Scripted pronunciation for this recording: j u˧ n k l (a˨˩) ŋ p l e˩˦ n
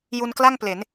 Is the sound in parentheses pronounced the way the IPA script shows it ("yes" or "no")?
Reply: no